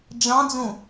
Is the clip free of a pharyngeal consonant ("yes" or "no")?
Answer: yes